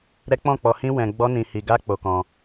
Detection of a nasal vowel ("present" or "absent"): present